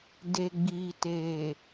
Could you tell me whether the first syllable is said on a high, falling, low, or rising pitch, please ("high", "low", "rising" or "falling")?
low